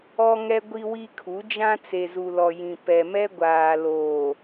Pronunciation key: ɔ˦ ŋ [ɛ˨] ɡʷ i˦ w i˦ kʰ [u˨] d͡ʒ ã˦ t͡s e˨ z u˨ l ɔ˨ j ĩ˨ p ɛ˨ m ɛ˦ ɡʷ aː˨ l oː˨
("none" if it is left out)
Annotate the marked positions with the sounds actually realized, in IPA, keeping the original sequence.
ɛ˦, u˨˦

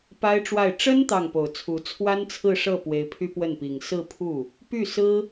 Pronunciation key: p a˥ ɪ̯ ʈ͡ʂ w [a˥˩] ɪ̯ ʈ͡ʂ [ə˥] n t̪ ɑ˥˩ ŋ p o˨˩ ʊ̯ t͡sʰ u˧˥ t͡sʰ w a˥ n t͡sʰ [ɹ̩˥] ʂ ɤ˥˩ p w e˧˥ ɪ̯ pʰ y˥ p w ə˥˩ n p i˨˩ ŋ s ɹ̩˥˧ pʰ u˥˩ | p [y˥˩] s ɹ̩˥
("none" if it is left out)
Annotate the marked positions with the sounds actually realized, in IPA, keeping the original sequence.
a˥˩, ə˥, ɹ̩˥˧, y˥˩

